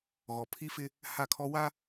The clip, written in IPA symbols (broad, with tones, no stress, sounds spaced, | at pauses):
ɣ ɔ˨ pʰ i˦ f ɪ˦ | h a˦˨ kʰ ɔ˦ w a˦